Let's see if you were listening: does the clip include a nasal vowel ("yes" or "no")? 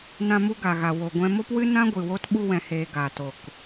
yes